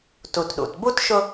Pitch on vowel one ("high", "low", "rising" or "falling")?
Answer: low